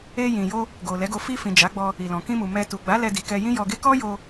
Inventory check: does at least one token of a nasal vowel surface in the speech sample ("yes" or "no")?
yes